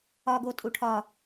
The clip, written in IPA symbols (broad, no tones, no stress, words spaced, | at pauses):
ɒɡotʼu ʈʰɒ